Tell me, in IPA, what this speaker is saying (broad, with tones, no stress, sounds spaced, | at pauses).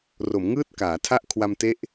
r o˩˦ m ŋ ɯː˥˩ t̚ k aː˩˦ tʰ a˥˩ ʔ kʰ w a˧ m t e˦˥ ʔ